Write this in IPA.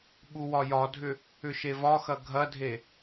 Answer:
ɓuwɒjɒdʱʏ | ʏʃevɒxɐ ɡʱɐdʱe

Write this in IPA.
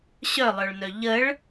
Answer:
ɕœlˠœɭnœ ʎəɭ

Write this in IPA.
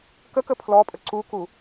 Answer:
kəkə pʰlɔpʼə ǀuku

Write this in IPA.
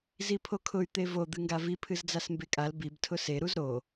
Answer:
zipʰokʰʊy̯ t̪evo d̪ɨŋɡavi pʰɨzd͡zasmbekʼal bib tʰʊse ɾuzɾo

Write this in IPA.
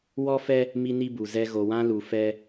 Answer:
wɔ˦fɛ˦ | mi˦ni˦bu˨zɛ˦ ɣo˨wã˦lu˨fɛ˦

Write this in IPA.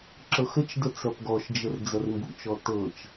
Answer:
ǁɤxət͡ʃdə t͡sɐpɡɔʃd͡ʒər d͡zɐrmbṵt͡ʃɔ tɤt͡ʃ

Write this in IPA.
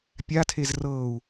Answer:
pʲatʰez rɤːu̯

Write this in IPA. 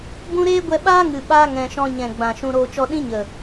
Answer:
bũ˦ ɾeː˦ɡʷɛ˧ɓaː˦ŋɨ˨ ɓaː˧ ŋɛ̃˨ʃɔ̃˧ ɲɛ̃˨ɡ͡bã˨ ʃũ˧ɾoː˧t͡ʃɔ˦ ɗĩ˦ ɲə˨

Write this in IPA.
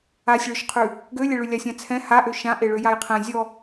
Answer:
asʲɭøʃqʰʉ | ɡølʲɛɭʉ lʲasʲãt͡sʰɛ̃ haʔø ʃã ʔeɭøjajqʰɛ̃ zʲɔ

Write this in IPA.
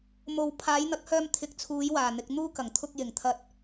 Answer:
mo˨w pʰaː˨˧jn̪ɐ˨˥k̚hœː˧m t̪ʰɪ˨k̚t͡sʰuː˨˧j waː˨˩n̪ɪ˨k̚ n̪uː˥ kɐ˨˩ŋ t̪ʰʊ˧k̚jɪ˨˩ŋ t̪ʰɐ˧t̚

